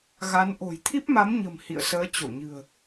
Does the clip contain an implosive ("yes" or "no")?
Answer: no